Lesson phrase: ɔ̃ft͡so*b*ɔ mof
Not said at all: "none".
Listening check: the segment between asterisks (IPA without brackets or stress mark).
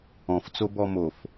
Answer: b